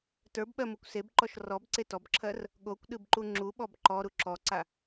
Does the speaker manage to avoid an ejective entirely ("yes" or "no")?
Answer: yes